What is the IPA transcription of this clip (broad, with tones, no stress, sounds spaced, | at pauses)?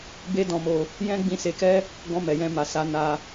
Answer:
b e˦ d ɔ̃˧ m o˧ | j ɛ̃˦ ɡ͡b ĩ˧ s e˧ k ɛ˦ | ɡ ɔ̃˧ m ɛ˨ j ɛ̃˧ m a˨ s a˨˦ n a˧